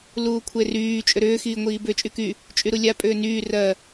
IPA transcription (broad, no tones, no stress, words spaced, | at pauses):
luːkʷʰeryː t͡ʃʼʏɾʏː xiːŋʷiːbʏ t͡ʃʼyky | t͡ʃʼyɾulʲa pʼʏːnyː rɜ